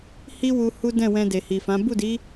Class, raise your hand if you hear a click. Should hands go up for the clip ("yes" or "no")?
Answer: no